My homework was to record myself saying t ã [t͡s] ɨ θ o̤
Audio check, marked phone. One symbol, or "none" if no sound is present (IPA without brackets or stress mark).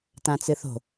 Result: t͡s